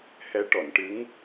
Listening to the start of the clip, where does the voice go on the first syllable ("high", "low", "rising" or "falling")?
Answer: rising